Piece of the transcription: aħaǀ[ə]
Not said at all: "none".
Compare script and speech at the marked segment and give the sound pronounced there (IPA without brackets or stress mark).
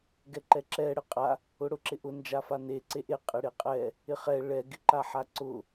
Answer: ʊ